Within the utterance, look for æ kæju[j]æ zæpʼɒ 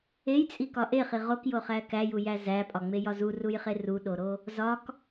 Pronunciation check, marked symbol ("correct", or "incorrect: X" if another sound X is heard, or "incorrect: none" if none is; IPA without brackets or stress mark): correct